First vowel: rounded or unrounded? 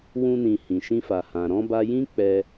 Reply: rounded